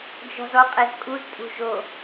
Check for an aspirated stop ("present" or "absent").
absent